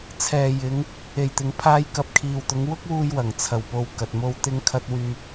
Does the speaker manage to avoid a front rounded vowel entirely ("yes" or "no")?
no